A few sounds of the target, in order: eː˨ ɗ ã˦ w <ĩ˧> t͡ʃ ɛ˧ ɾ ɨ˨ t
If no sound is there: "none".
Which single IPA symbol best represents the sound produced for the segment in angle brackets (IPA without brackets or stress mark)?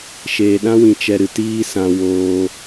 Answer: ĩ˧